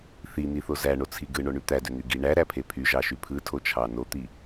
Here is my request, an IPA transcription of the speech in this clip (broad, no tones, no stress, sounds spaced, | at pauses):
θ i n̪ i θ o z æ ɳ o t͡sʰ i ɡ ɯ ɳ o ɳ y t̪ æ d ø n̪ y ɡ i ɳ æ ɾ æ pʰ e pʰ y ʒ ɑ ʃ y pʰ ɯ tʰ o t͡ʃʰ ɑ n o t̪ i